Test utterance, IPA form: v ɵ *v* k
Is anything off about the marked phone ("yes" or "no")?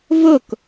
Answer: yes